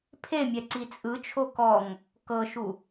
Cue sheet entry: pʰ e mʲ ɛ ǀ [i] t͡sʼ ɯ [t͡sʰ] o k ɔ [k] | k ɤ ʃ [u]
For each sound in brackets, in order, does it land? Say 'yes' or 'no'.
yes, no, no, yes

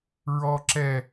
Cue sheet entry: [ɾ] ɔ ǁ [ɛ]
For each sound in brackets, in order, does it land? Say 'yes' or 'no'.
no, yes

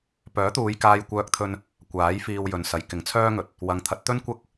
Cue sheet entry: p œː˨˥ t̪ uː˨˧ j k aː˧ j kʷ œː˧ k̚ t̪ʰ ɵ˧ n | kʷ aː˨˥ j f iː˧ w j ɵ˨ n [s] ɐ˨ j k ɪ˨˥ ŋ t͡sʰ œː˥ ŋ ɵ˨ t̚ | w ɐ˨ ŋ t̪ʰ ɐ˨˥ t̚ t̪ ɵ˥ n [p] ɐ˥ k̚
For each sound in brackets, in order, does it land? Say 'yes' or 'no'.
yes, no

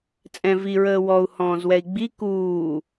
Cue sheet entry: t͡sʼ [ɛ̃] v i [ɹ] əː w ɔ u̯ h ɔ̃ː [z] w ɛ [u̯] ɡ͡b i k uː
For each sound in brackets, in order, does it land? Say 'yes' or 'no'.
yes, yes, yes, no

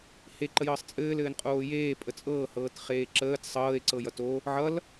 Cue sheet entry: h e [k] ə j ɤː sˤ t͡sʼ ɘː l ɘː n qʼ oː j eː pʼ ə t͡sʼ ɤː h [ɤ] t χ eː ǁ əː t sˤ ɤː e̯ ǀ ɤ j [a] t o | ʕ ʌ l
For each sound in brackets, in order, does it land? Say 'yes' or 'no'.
no, no, no

